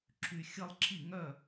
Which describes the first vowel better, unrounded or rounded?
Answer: rounded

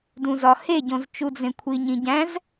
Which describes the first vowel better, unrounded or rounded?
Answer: rounded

